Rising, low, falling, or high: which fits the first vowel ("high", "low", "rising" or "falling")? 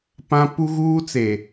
high